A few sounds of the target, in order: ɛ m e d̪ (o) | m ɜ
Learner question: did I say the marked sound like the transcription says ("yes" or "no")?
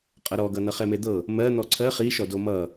no